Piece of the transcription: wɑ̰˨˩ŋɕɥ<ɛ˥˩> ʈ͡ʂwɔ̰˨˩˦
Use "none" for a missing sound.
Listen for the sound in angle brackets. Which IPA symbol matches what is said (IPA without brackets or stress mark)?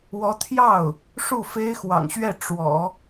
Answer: ɛ˥˩